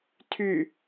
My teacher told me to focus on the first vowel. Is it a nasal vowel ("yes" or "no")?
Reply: no